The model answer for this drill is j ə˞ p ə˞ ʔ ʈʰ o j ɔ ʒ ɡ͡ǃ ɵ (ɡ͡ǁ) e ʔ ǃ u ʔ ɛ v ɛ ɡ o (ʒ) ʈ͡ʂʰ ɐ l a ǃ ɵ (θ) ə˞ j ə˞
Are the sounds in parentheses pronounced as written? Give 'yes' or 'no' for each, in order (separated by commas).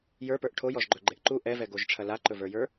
no, yes, no